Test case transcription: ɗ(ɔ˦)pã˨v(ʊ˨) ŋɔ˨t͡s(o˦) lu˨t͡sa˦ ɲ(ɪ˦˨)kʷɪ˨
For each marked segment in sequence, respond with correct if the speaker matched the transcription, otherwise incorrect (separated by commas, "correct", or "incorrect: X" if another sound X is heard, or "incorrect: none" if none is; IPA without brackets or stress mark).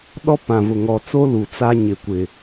correct, correct, correct, incorrect: ɪ˨